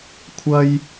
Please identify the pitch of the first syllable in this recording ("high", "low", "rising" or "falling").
high